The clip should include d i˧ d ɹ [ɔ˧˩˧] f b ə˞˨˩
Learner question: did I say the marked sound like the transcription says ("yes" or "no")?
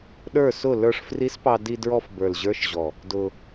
no